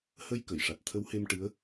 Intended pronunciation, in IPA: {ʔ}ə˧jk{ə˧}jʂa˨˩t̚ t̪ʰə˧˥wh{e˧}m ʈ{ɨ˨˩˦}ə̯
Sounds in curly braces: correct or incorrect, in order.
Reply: incorrect, incorrect, correct, incorrect

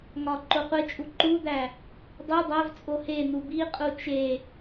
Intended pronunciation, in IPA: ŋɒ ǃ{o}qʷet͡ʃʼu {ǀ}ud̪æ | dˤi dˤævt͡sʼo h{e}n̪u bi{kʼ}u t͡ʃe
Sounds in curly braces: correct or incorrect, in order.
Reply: correct, incorrect, correct, incorrect

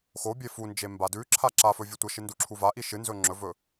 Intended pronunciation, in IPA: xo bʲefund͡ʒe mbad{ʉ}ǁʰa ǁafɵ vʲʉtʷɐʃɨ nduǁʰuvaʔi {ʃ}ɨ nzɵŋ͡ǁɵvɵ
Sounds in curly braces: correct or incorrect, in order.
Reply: correct, correct

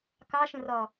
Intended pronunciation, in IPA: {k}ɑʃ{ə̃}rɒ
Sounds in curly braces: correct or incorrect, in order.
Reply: correct, correct

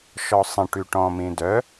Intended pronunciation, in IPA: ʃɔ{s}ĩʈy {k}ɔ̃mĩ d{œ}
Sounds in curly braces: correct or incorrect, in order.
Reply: incorrect, incorrect, correct

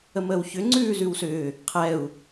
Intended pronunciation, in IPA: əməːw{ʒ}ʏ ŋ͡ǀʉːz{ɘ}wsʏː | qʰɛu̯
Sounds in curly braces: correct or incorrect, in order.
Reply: incorrect, incorrect

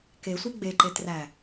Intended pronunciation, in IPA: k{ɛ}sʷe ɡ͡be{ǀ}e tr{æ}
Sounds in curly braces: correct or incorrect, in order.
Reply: incorrect, incorrect, correct

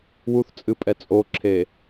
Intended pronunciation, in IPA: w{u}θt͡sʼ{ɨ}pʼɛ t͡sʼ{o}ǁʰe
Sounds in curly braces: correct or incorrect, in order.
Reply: correct, correct, correct

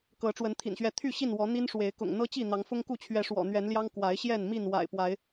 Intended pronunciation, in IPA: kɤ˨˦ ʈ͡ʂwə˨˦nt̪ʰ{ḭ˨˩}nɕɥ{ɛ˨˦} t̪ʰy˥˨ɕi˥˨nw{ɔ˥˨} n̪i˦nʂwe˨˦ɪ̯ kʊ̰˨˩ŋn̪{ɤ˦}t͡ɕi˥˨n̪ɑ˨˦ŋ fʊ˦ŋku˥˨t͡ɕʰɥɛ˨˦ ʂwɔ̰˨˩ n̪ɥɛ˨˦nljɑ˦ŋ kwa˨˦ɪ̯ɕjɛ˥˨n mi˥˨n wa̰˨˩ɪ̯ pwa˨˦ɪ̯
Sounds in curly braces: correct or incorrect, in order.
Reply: correct, correct, incorrect, correct

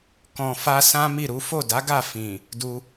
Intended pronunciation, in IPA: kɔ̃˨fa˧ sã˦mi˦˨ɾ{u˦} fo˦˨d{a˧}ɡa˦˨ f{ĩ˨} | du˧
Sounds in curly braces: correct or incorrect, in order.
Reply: incorrect, incorrect, correct

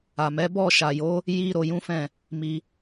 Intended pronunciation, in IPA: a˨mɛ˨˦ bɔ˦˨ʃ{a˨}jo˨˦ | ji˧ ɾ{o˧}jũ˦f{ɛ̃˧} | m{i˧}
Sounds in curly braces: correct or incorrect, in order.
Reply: correct, correct, incorrect, correct

